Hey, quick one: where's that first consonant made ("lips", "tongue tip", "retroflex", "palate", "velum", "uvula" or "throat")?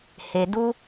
throat